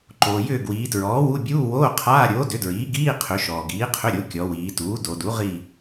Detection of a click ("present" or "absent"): present